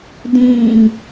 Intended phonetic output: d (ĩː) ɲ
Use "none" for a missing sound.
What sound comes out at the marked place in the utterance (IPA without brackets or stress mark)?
ĩː